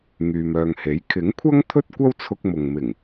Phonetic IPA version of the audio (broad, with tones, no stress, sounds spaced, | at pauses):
ŋ yː˨ m œː˨ ŋ h e˨˥ j kʰ ɪ˨˥ ŋ kʷʰ ɐ˥ ŋ t̪ʰ ɵ˥ t̚ kʷ ɐ˥ w t͡sʰ ʊ˧ k̚ m ʊ˨ ŋ m ɪ˨˩ ŋ